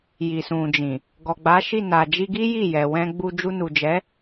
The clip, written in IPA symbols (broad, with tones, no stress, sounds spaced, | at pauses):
j i˨ s ũ˨ d͡ʒ ĩ˨ | ɡ ɔ˨ ɡ͡b a˨˦ ʃ i˦˨ n a˨ d͡ʒ i˧ ɡ i˦ j i˦˨ j ɛ˨ w ɛ̃˧ ɡ͡b u˧ d͡ʒ u˧ n u˨ d͡ʒ ɛ˨˦